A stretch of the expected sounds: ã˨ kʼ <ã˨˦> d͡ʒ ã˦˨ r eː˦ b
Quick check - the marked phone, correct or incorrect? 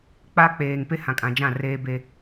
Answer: incorrect